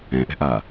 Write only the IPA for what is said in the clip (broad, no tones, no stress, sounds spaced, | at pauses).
ɛ̃ ʔ ɛ̤ ʔ aː